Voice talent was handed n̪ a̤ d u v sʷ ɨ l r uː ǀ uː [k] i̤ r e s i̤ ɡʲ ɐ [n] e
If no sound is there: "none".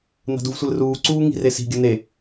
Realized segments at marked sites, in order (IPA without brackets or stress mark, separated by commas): ŋ, n